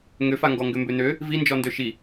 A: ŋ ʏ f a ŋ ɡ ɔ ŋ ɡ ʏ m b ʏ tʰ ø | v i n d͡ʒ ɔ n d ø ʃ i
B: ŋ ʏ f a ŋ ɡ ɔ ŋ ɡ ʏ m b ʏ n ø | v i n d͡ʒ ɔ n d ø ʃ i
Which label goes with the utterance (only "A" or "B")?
B